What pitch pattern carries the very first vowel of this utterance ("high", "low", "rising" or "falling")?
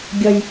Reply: high